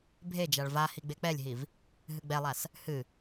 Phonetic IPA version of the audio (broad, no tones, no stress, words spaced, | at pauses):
bʱed͡ʒaɭ vahi ɡ͡bek͡pɛlʲɦiv | ɦɨɡ͡bɛlˠas | hɨ